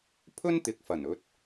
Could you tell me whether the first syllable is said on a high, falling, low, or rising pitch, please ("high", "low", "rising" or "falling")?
high